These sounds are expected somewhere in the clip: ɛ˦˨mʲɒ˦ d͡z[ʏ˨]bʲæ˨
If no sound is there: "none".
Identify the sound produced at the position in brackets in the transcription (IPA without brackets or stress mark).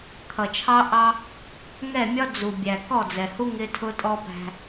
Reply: u˨